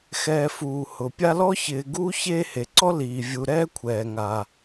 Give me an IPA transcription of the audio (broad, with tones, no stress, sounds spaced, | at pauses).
x ɛː˨ f uː˩ h ʊ˩ pʲ a˦ l ɔ˥ ç ɪː˨ ɡ uː˥ ç eː˦ h e˩ ǀ ɔ˥ l iː˩ vʲ u˨ ɾ ɛː˥ kʷʰ ɛː˩ ŋ a˩